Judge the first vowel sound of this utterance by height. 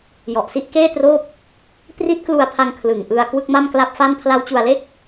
mid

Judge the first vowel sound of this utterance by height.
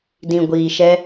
high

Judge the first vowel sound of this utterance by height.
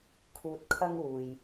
high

